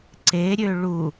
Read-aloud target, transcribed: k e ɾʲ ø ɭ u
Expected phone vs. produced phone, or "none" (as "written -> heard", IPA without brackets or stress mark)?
k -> ǀ